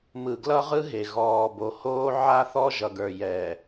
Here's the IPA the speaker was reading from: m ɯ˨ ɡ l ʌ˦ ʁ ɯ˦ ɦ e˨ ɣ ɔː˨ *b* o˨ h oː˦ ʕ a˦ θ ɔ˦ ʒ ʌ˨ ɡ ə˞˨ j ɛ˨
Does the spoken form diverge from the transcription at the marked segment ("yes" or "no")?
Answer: no